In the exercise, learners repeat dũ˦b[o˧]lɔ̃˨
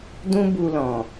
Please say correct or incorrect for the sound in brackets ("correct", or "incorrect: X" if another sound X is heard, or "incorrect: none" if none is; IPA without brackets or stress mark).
incorrect: u˧